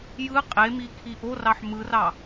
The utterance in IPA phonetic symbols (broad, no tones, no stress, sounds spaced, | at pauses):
j ɯ qʼ e m i kʰ i ʔ o r ɑ ħ m ɯ r ɑ